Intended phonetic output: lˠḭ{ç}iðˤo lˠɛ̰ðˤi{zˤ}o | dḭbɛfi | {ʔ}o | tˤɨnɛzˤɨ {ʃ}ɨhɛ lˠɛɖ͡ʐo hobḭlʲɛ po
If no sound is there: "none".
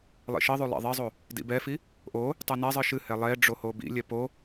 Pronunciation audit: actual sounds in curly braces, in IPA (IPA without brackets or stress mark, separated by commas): ʃ, zˤ, ʔ, ʃ